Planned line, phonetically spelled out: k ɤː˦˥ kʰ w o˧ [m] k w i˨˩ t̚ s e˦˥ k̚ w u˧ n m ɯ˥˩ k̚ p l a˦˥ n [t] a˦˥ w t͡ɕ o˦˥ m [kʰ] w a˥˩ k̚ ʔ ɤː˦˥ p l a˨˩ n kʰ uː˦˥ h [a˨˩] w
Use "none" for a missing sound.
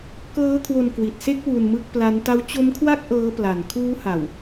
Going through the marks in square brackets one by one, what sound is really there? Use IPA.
n, t, kʰ, a˨˩

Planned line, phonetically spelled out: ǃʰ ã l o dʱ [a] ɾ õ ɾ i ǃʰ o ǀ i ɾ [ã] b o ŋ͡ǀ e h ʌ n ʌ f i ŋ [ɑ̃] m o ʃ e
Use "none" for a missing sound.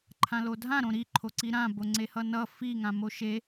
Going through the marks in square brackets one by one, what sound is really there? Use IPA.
ã, ã, ã

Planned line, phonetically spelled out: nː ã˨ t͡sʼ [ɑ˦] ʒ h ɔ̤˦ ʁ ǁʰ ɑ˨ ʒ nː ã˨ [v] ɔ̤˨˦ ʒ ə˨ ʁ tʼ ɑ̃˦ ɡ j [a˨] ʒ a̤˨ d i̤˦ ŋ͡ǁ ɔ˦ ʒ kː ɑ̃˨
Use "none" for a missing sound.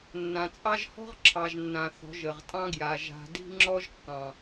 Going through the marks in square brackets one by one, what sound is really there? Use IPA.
ɑ˦, θ, a˨

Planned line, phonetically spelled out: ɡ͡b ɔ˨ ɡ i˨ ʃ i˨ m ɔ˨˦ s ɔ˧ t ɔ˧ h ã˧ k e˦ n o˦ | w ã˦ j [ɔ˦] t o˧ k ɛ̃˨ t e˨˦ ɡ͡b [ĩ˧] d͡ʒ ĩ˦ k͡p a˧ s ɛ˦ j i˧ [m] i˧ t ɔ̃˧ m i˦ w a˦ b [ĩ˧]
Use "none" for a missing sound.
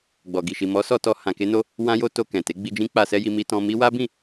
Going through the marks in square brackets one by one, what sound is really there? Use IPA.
o˦, i˧, m, ĩ˦˨

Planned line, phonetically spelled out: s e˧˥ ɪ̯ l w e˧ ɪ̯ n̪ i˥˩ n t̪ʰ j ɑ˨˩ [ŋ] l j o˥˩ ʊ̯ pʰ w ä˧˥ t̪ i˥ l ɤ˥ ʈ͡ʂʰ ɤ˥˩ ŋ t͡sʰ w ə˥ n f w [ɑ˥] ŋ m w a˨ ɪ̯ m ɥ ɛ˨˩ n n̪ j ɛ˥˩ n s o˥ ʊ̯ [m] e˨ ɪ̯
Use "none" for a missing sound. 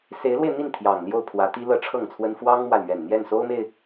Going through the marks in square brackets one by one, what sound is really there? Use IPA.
ŋ, ɑ˥, m

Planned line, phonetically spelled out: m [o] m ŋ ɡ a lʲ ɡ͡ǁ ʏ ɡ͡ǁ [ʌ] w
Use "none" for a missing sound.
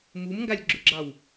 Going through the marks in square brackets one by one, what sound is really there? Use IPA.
u, ɑ

